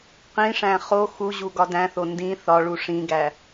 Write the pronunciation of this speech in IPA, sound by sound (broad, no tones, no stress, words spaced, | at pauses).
qĩʂæ̃ χo xuʑu ɡɒdæ̃θo ndĩ θɒɭu ʂĩɡæ